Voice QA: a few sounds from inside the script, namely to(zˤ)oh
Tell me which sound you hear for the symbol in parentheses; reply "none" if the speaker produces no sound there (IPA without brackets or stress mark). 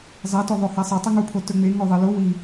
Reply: ðˤ